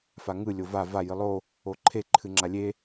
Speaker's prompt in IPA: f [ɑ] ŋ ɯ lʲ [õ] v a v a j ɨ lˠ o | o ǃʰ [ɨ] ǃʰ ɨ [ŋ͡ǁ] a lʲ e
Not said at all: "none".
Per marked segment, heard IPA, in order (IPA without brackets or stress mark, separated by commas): a, o, e, ŋ͡ǁ